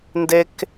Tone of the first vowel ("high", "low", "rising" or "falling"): high